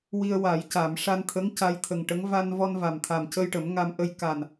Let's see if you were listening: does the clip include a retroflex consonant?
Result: yes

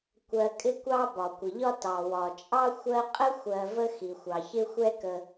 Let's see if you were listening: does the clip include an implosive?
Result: no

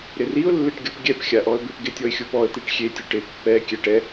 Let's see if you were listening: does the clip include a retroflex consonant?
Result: yes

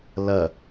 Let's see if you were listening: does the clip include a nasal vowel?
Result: no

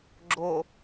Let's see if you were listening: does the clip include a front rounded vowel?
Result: no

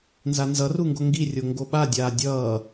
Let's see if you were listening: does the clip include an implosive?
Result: yes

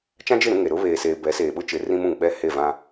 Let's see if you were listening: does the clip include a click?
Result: no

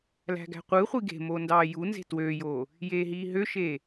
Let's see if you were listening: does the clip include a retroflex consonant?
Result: no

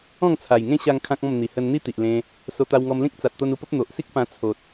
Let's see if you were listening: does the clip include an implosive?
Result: no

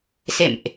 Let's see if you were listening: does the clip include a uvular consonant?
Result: no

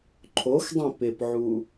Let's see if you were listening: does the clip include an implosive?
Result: no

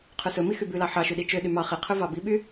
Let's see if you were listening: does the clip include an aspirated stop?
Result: yes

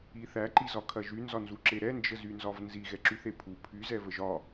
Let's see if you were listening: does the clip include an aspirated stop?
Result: yes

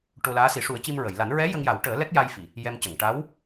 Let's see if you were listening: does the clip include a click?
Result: no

